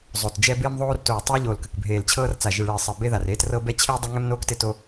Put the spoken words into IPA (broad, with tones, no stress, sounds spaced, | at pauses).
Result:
zˤ o˨˩ t d͡ʒ ɛ˦ b ɪː˦ m ðˤ oː˦ r t oː˨˩ tˤ ɜ˦ ʎ oː˨˩ l k ə˨˩ k bʱ eː˨˩ l t͡ɕʰ ɤː˦ r t͡s a˨˩ ʒ ɪ˨˩ ɭ ɪː˨˩ sˤ ɜ˨˩ b e˦ ð a˨˩ r eː˦ t r ɤ˦ b ɛ˦ t͡ɕʰ ɪː˦ dˤ o˦ ŋ ɛ˦ m n oː˦ k t ɪ˦ t o˦